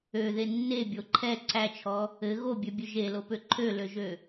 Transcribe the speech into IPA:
ø ð e nː e bʲ o ǃʰ ɛ ǀ æ t͡ʃʰ ɔ | ɘ ɣ o bʲ ø bʲ ø ʒ e l o p ø ǃʰ ø l ø ʒ ø

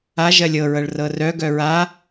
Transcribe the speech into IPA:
a ʒ ɜ lʲ ɤ ɹ ɤ ɭ r ɤ r œ ɡ œ ɹ a

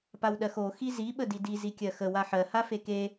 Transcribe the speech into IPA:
p a w ɗ ɜ x o x i z i ɓ ə d i d i z i kʲ ɜ x ə w a ħ ɜ h a f e k e

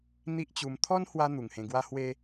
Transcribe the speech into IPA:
n̪ i˦ ʔ t͡ɕ u˧ m t̪ʰ ɔ˦ n h w a˧ n̪ u˨˩ ŋ h ẽ˧ ɡ w a˦ h w e˦

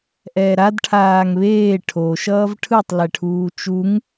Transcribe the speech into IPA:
ʔ ɛː ɾ a d ʈʰ aː ŋ β eː ʈʰ o ʃ ʌː v ʈʰ ɯ tˤ l ɛ ʈʰ uː t͡ʃ u ŋ

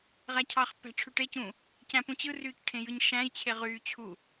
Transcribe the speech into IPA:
ʁ æ cʰ ɑ χ pː æ̤ ʈ͡ʂʰ y ʈ e c ũː | c æ̃ p ũ t͡ɕ ɯ r yː c ʈʰ ẽ j ɯ ɲ ʃ æ̃ j t͡ɕʰ e ʁ yː t͡ɕʰ u

